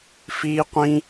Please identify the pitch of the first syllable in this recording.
high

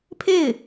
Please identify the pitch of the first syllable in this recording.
falling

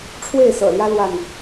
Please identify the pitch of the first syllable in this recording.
falling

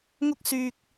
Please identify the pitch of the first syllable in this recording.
high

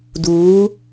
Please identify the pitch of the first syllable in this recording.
rising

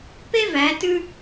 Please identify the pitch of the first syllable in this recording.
high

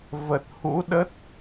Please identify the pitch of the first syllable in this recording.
low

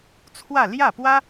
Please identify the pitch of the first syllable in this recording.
falling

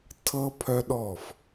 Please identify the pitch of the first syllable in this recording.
high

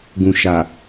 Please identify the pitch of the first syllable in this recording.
low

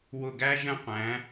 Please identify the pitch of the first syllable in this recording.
falling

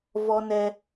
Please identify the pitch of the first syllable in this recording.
high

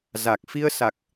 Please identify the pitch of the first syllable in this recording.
low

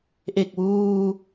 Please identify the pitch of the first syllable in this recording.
low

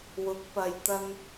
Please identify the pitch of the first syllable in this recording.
rising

